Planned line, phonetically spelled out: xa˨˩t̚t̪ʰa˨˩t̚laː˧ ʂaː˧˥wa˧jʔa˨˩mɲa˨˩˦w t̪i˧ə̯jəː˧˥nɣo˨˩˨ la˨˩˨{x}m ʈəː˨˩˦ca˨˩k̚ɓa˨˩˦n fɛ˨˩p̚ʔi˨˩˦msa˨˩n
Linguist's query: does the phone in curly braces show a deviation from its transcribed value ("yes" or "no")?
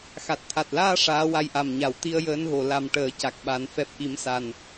yes